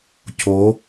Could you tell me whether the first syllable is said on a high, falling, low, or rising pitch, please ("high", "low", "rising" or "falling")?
rising